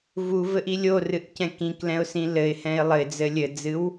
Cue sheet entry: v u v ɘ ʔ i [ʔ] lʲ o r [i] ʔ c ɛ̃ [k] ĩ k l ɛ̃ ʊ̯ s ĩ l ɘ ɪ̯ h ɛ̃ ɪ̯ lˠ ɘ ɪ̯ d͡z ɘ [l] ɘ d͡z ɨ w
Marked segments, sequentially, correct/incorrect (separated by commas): incorrect, incorrect, correct, incorrect